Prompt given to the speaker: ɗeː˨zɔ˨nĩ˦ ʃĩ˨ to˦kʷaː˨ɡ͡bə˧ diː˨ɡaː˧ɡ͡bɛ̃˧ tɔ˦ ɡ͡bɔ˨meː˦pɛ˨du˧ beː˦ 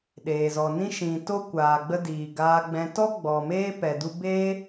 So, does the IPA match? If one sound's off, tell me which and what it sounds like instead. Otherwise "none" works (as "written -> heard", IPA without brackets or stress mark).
none